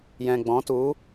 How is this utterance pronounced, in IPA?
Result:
jɛ̃˨ɡ͡bɔ̃˨˦tu˨˦

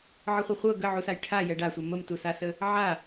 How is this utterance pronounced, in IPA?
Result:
ʕəχʷɤχʷɤ ɡəʕusaj ʈʰa jɛɖasʷɛ məmtusasə | ʕa

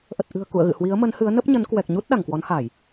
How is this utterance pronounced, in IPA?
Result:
ʔə˨˩t̚ʔɨ̤˨˩ə̯ kṵ˧˨ə̯ɣɨ̰˧˨ hwi˨˦ə̯mə˨˦nhɨ˨˦ə̯ nə˦˥p̚ɲə˨˦n kwɛ˨˩k̚ ɲu˦˥t̚ ɗa˧˩ŋkwɔ˨˦nha˧˩˨j

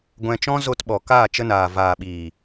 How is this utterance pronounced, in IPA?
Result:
ɡʷɛ̃˧t͡ʃɔ̃˦ zo˧tɓɔ˨ kaː˦˨t͡ʃə˧naː˨ vaː˨ɓiː˨

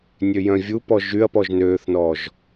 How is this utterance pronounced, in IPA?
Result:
nʲøjœ̃vʲupɔ ʒyɐ̯pɔʒ nøːθnɔːʒ

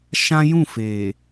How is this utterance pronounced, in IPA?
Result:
ʃã˦ jũ˦˨fe˨

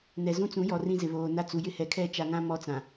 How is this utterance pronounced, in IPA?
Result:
nɛ˨zũ˦ t͡sũ˨˦jɔ˨ rĩ˦zɪ˨βoː˨na˦ t͡su˨ jɪ˦hɛ˨ kʰɛ˦˨t͡ʃa˨ŋã˦ mɔ˦t͡sã˨

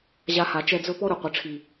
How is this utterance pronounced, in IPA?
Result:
ʑa˧ha˨t͡ʃɛ˧d͡zɵ˦ pɔ˦ɾɵ˨ qʷɘ˨ʈ͡ʂʰi˨

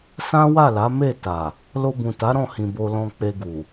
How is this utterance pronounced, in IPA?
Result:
sã˦wa˦˨la˨˦ me˦˨ta˨ | lo˧bũ˨ta˨˦ ɾɔ̃˦˨hĩ˨ bo˧lɔ̃˧k͡pe˧ɡu˨

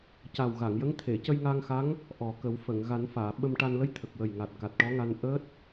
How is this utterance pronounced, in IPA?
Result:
ca˨˩wɣa˨˩˨ŋjə˧˥ŋ t̪ʰe˨˩˨cə˧jŋa˧ŋxa˧˥ŋ | ʔɔ˨˩kə˨˩˦w fə˨˩˨ŋ ɣa˨˩˦nfaː˨˩˨ ɓə˧mʈa˧n lə˧˥jt̪ʰə˨˩k̚wə˨˩jŋa˨˩t̚ ka˨˩t̚ʈɔ˧˥ŋa˧n ʔəː˦˥t̚

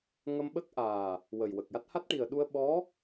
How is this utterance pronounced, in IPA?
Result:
ŋə˧mɓə˦˥k̚ʔaː˨˩ | wə˨˩jwə˨˩k̚ja˦˥t̚ ha˦˥t̚ʈi˨˩ə̯ɗu˧ə̯ ɓɔ˧˥

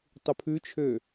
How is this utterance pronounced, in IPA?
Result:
tˤupʰʉt͡ʃʰø

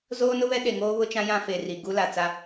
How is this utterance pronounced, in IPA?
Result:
zoː˦nʊ˦βɛ˦ ɗe˨ŋoː˦βʊ˦t͡ʃã˦ jã˦fe˨ri˨ ɡu˦la˨ t͡sa˦

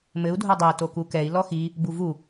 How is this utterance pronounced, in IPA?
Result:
mɘu̯ dʱodˤe tokukɛi̯ lɔxi | buvu

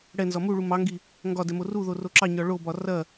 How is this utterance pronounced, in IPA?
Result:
ɽɛnzɒ muɭu mɑŋɡi | ŋɡɒdɛ moruðo roǁɑɲɒ ɭobɒ rɐ

